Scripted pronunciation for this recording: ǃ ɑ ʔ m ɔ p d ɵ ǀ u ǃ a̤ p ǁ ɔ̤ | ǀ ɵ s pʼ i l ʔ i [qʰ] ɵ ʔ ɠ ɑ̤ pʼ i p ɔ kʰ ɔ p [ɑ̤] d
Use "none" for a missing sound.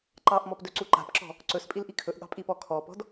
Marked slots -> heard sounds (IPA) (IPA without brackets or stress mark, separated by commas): kʰ, ɔ̤